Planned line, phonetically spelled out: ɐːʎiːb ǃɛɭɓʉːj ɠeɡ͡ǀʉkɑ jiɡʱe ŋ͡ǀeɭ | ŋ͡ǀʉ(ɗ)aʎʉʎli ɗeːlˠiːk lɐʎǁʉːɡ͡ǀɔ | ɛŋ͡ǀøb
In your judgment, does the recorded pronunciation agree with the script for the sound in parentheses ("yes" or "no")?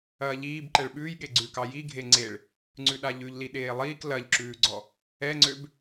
yes